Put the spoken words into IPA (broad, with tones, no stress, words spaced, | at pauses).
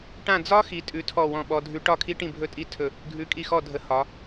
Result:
ʈã˥˧ d͡zɒ˦˥ xi˦˥ tʼʉ˦˥tʰɔ˥˧wɔ̃˥˧ɓɔ˦˥ dʱʉ˦˥ ʈɒ˥˧kʰi˦˥ʈĩ˥˧bʱɵ˦˥ tʼi˥˧ tʰɵ˥˧ | ɡʱʉ˦˥kʼi˥˧xɔ˥˧dʱə˦˥ hɒ˦˥